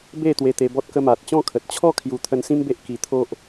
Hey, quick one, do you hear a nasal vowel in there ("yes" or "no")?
yes